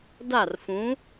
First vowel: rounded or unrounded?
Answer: unrounded